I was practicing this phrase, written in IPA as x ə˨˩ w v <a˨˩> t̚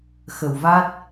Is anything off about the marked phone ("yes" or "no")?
yes